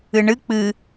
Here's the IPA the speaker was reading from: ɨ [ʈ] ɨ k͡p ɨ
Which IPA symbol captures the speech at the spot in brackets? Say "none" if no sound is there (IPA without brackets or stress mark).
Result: ɳ